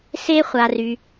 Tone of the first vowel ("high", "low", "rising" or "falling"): high